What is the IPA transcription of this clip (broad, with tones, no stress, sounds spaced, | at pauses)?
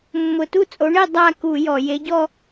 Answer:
mː ʊ˧˩˧ t u˥˧ t͡sʼ o˨˥ ɳ e˥˧ dˤ a˥˧ k u˧˩˧ j ɔ˧˩˧ j e˨˥ ɟ ɔ˥˧